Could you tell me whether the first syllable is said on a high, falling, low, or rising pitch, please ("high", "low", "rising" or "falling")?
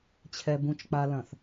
low